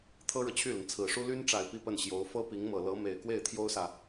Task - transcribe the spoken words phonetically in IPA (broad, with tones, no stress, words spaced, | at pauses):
t̪ʰɤ˥ɻɤ˨t͡ɕʰy˥˩lə˩n t͡sʰɹ̩˨˩ʂu˥ ly˥nʈ͡ʂa˨˩ɪ̯ pi˥˧pə˥˩nɕjo˧˥ʊ̯ fɤ˥pi˧˥ŋmɤ˨˩lɤ˧˥ me˨˩ɪ̯kwe˥˩ɪ̯t̪ʰjo˥ʊ̯sä˨